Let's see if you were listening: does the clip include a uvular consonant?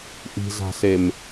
no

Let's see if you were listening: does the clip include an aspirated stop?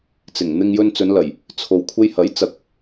yes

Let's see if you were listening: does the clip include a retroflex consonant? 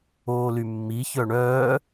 yes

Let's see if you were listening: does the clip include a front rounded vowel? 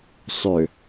yes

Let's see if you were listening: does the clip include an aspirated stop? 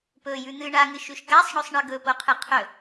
yes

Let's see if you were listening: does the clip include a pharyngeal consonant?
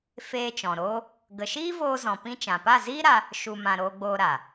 no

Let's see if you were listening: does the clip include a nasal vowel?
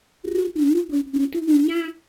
yes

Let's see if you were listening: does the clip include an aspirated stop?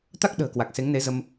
no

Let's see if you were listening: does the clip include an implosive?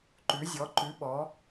yes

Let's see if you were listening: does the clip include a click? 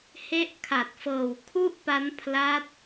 no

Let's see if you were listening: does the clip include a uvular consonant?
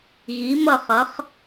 yes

